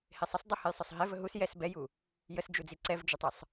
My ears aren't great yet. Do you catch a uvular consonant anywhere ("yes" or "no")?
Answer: no